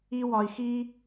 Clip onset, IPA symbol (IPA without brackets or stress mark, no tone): i